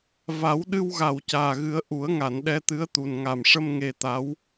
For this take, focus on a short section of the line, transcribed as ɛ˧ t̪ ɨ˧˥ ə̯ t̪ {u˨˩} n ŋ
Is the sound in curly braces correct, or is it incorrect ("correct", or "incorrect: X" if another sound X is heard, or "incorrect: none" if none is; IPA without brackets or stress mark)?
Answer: correct